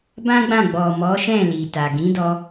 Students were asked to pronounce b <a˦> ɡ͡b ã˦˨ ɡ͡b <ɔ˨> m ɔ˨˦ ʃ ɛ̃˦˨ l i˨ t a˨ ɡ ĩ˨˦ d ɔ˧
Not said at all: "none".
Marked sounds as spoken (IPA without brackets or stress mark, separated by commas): ã˦, ɔ˨